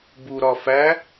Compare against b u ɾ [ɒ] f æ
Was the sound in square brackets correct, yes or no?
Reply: yes